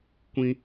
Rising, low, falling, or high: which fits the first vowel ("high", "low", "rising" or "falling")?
high